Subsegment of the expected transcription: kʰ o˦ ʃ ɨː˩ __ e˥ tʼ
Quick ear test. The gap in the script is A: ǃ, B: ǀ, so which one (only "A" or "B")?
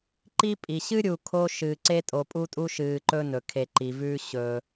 B